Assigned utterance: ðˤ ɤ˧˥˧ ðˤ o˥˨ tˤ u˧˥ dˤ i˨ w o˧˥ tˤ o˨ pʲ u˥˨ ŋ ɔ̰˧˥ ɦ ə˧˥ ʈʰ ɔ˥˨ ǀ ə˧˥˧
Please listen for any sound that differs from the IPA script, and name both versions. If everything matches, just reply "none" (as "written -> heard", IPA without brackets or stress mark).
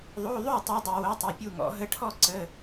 ɤ˧˥˧ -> o˧˥˧